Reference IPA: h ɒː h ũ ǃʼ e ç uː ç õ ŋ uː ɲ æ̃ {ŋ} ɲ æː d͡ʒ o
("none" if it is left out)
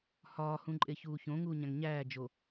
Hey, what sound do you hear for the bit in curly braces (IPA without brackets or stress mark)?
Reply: ŋ